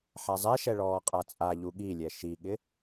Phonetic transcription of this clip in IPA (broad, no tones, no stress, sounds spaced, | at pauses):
ħ a zˤ ɛ ʃ ɛ ɭ ɔː qʼ a t͡sʼ a ʎ u ɠ i lʲ ɛ ʃ i ɠ ɪ